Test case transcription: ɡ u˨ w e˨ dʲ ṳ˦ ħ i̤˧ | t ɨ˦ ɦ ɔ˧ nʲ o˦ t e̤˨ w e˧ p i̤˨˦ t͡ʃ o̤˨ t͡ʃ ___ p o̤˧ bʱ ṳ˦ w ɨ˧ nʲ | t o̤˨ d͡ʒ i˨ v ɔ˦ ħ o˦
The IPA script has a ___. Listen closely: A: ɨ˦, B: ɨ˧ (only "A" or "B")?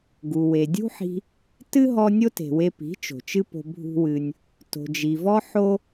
A